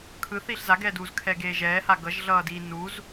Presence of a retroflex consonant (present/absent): absent